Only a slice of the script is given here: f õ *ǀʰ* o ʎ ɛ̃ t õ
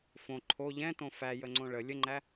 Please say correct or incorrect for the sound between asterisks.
incorrect